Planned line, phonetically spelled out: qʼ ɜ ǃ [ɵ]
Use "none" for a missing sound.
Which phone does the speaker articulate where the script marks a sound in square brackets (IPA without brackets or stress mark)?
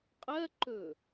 ɵ